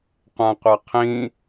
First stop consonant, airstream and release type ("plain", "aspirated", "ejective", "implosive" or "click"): plain